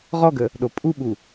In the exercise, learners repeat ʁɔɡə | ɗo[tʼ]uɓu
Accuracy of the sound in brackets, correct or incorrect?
incorrect